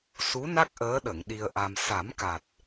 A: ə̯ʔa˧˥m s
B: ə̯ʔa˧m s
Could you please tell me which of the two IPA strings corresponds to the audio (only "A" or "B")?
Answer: B